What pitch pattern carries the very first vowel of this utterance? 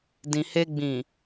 low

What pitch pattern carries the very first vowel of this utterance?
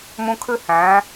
high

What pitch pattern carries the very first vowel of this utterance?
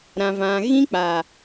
low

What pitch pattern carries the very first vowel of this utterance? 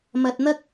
low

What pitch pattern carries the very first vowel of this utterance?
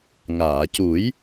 low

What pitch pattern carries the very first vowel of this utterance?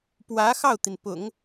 rising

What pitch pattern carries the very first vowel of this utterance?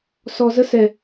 low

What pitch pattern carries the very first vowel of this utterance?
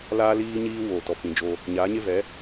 high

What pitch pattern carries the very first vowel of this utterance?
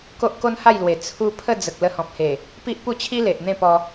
high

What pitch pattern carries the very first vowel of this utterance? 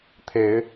rising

